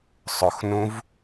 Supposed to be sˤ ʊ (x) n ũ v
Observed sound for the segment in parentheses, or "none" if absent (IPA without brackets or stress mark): x